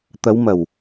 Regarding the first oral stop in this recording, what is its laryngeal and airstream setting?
plain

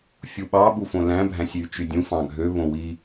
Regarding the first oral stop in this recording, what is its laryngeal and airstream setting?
implosive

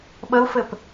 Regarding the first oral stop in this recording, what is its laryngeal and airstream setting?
implosive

